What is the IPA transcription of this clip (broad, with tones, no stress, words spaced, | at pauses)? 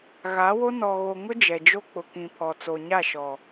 ɣa˨˦wo˦ nɔ˨ɣo˨ŋʊ˦ d͡ʒɛ˨d͡ʒo˦ k͡pʊ˨kĩ˨pʰɔ˨ t͡so˨ɲa˦˨ʃɔ˨